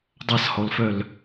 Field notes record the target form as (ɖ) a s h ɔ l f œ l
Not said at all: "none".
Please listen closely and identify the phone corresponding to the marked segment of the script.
dˤ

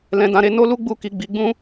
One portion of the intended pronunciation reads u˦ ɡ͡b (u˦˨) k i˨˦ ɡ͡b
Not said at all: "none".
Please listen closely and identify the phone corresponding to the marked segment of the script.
u˦˨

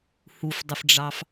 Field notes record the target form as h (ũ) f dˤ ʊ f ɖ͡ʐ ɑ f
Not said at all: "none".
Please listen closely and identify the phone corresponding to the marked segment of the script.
u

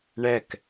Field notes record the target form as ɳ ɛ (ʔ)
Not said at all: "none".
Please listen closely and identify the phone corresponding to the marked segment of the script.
k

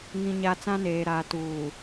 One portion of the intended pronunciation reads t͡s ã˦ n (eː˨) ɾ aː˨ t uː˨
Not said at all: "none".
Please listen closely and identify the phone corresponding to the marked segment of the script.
eː˨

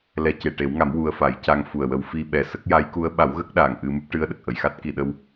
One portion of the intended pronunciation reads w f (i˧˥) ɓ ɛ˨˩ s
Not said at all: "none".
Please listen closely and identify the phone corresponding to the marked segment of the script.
i˧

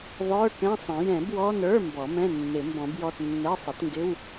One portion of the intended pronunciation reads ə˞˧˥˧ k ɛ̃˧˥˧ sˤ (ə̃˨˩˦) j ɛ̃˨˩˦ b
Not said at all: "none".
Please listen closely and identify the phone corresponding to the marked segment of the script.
ə̃˨˩˦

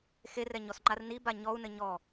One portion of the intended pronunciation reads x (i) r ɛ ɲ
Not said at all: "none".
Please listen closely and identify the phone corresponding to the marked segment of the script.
e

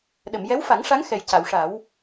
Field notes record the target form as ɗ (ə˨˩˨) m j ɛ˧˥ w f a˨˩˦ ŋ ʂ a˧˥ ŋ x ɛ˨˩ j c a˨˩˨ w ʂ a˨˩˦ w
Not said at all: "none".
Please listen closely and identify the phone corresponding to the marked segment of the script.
ə˨˩˨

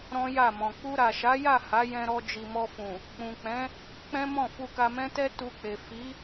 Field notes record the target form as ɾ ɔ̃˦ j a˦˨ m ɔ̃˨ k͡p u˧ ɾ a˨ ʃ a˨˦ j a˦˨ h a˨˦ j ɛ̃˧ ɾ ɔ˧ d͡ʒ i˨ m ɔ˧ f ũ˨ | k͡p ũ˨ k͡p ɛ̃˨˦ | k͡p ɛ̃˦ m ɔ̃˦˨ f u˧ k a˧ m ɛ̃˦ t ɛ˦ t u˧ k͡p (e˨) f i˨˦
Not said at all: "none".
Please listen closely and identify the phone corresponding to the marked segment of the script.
e˨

